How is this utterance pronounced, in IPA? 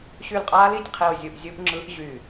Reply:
ɕ y˦˨ l qʼ aː˦˥ l i˦˨ tʲ qʰ i˦˨ o̯ zʲ u˦˨ ʔ zʲ u˦˥ ʔ ŋ͡ǁ ɯ˦˥ ʔ ʑ y˦˨

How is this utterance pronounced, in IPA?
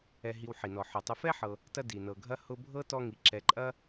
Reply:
ɛ˨ ɦ i˨ w ħ i˩ n ɔ˩ ħ ʊ˩ tˤ ʊ˨ f ɛ˦ ħ ɤ˨ | t ɐ˦ d i˩ n ɤ˨ ɡʱ ɐ˥ h ʊ˦ bʱ ɤ˥ t ɔ˦ ŋ i˩ ǁ ɛ˨ ǃʼ ɐ˥

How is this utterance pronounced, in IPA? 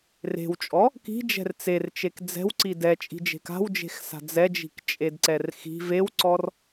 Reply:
r e̤ w t͡ʃʼ ɔ | k i̤ d͡ʒ ɛ̤ r t͡s e r t͡ʃ e k d͡z ɛ̤ w ǀ i d ɛ t͡ʃʼ i̤ d͡ʒ e̤ k a̤ w d͡ʒ e̤ x s a̤ d͡z ɛ d͡ʒ i̤ k t͡ʃʼ e d ǀ ɛ r x i̤ v e w ǀ ɔ r

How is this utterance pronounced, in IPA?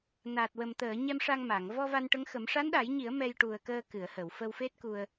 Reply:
n aː˨˩ t̚ w ə˨˩ m t̪ əː˨˩˨ ɲ ɛ˧ m ʂ a˧ ŋ m a˨˩˨ ŋ v ɔ˧ v a˧ n ʈ ə˧˥ ŋ x ə˨˩˦ m ʂ a˧˥ n ɗ a˨˩˦ j ɲ i˨˩˦ ə̯ m ɛ˧ j ʈ u˨˩ ə̯ k əː˧ k ɨ˨˩˨ ə̯ h ə˨˩˨ w f ə˧ w f e˦˥ t̚ k u˧ ə̯

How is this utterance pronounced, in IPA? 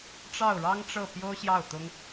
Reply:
ʈ͡ʂ ɑ˥˩ ʊ̯ ɻ ɑ˥ ŋ ʈ͡ʂ ɤ˥˩ p j o˥ ʊ̯ ɕ j ɑ˥˩ ʊ̯ t̪ ʊ˥ ŋ

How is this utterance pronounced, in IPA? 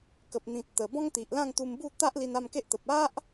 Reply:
k ə˨ p̚ n̪ ĩ˨ t̚ t̪ ə˨˩ b ɔ̃˦ ŋ t̪ i˨ ʔ l ã˥˧ ŋ t̪ u˧ m b u˥˧ t̪ a˦ ʔ l i˧ n a˥˧ m k e˦ ʔ t̪ ə˨ p̚ a˦ ʔ

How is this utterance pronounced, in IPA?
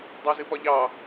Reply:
dˤ ɑ z ɨ p ɒ ʎ ɑ

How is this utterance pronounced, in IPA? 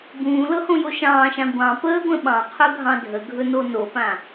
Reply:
b ũː l ɤ h õ j o ʃ ɑ̃ː ʃ ã ɡʷ ɑ̃ p əː ɡʷ ə̃ ɓ ɑ̃ qʰ ɵ ɡʱ ɑ̃ dʱ ə ɡʱ ɵ n o n o p ã

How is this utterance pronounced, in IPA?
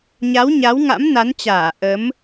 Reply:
ɲ a˨˦ w ɲ a˨˦ w ŋ a̰˧˥ m n a˨˦ n t͡ɕ aː˧˩ ʔ ə˨˦ m

